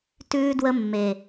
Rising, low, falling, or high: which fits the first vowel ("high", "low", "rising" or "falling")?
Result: high